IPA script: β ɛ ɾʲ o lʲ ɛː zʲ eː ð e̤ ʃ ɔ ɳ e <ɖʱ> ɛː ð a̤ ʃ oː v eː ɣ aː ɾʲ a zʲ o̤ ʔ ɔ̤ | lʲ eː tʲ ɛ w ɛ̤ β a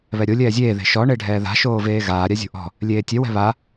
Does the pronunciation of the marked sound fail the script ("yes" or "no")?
no